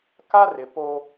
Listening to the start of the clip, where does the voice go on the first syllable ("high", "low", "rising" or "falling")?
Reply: high